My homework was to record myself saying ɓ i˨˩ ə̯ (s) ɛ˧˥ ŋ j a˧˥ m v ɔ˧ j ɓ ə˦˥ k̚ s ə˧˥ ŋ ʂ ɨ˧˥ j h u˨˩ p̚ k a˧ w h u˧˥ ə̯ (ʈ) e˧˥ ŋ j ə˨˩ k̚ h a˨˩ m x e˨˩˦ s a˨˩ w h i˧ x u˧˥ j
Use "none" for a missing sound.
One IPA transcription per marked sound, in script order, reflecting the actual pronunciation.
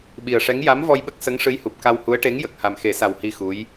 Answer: ʂ, ʈ

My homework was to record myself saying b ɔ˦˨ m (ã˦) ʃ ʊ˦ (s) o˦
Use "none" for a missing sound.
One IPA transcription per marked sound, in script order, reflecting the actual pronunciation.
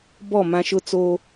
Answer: ã˦, t͡s

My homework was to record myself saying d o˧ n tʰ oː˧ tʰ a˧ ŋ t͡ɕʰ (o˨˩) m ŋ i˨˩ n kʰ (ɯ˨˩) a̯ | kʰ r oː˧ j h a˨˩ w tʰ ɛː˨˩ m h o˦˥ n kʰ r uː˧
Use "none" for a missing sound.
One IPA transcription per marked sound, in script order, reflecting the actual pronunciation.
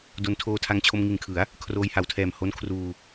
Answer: o˧, ɯ˩˦

